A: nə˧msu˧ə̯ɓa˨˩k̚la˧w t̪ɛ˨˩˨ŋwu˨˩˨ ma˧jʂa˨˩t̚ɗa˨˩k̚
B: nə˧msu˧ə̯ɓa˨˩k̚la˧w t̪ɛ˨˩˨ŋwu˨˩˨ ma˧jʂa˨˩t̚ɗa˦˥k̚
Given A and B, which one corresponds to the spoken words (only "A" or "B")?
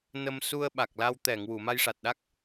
B